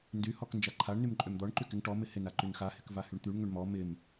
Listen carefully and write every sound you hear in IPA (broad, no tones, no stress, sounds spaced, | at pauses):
n d y h ɔ k n d͡ʒ a ǃʰ a ɳ n y m ǃʼ ø m d̪ ɔ ɳ ǃ y k ɪ ŋ ʈ ɔ m ɪ h ɪ n a ǃ y n x a h ɪ k v a h y ɳ t̪ y ɳ ŋ ø ɳ m ɔ m ɪ m